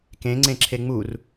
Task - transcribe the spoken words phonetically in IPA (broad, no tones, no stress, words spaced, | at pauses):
kẽŋ͡ǀẽǁʰe ŋ͡mur